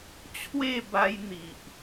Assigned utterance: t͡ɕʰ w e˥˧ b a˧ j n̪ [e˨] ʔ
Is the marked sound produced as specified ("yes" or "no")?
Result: no